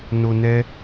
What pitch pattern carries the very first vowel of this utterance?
low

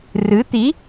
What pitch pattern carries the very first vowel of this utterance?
rising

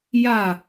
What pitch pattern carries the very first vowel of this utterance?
falling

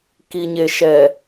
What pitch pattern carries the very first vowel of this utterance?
low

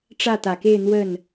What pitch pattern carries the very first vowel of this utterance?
falling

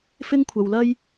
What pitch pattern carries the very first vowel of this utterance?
high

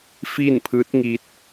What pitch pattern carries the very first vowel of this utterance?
falling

